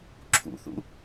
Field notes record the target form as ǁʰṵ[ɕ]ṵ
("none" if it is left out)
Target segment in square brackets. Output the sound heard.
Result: θ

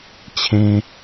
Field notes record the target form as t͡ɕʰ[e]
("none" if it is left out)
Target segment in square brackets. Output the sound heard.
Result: ẽ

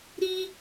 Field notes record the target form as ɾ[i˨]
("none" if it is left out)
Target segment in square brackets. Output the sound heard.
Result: i˦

